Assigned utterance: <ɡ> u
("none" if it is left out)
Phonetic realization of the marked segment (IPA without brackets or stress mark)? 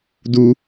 d